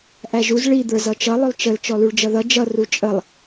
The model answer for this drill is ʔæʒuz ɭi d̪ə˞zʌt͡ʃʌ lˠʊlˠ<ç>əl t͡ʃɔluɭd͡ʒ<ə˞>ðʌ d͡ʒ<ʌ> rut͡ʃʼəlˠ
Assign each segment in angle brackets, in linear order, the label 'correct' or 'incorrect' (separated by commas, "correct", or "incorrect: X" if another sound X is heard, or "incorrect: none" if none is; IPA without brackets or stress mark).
incorrect: t͡ʃ, incorrect: ʌ, correct